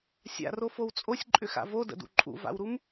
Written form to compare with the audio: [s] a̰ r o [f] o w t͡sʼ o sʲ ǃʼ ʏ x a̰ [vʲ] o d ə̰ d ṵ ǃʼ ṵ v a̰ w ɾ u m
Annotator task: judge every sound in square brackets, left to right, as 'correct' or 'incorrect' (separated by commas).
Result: incorrect, correct, incorrect